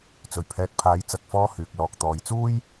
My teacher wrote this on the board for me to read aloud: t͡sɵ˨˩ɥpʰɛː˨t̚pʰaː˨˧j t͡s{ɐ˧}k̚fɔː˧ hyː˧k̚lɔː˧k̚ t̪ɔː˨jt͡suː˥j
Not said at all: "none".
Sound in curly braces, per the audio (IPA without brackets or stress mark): ɐ˨